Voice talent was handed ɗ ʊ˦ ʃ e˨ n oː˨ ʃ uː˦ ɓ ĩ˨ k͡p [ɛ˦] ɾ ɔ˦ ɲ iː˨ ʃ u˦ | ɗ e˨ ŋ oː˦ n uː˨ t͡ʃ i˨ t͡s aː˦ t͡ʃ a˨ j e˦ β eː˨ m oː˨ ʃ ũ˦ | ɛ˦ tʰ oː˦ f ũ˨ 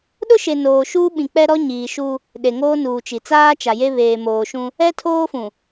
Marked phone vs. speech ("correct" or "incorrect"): correct